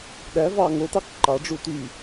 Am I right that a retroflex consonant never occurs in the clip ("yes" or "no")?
no